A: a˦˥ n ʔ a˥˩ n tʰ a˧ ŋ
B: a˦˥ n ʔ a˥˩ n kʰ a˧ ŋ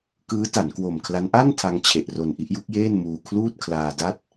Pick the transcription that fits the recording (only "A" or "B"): A